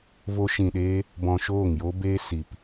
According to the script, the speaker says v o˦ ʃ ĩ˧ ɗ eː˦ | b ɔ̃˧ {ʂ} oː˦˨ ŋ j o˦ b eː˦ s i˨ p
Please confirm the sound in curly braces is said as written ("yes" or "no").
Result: no